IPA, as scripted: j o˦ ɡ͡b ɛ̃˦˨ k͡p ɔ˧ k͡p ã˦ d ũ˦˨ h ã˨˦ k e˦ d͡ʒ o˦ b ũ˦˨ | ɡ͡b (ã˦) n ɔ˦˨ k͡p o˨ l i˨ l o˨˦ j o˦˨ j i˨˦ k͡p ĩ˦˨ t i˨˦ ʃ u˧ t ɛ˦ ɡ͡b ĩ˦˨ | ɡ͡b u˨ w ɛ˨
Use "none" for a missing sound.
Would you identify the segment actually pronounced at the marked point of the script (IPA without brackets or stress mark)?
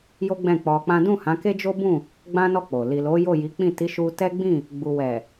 ã˦